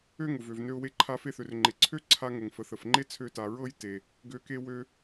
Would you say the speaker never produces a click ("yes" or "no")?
no